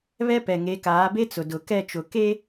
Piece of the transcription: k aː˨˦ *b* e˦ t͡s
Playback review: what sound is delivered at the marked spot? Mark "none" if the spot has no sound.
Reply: b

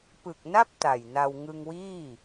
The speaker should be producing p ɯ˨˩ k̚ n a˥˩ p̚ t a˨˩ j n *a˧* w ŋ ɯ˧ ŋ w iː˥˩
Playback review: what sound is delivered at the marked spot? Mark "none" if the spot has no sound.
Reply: a˧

